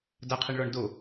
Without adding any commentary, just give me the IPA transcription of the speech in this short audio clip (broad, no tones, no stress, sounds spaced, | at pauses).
d a qʰ i ɳ ɭ ɔ ɳ d o